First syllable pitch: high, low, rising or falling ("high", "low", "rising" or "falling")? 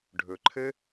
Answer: low